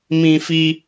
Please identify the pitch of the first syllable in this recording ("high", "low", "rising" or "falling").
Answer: high